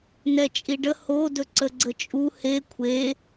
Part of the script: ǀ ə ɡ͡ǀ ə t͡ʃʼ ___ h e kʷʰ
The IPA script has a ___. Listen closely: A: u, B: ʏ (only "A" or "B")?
A